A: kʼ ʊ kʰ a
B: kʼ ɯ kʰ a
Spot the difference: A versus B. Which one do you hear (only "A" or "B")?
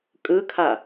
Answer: B